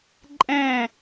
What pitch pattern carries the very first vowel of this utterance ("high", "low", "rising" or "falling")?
falling